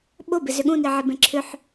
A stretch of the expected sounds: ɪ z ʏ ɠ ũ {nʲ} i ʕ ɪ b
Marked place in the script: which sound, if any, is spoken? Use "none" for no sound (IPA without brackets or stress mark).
n